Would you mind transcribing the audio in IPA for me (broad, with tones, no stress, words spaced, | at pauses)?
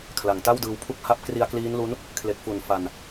kʰla˨˩ŋta˥˩wdɯː˧wpʰu˥˩k̚ ha˥˩p̚ kri˧a̯kliː˦˥nlu˦˥n | kʰle˨˩k̚fu˨˩n fa˧n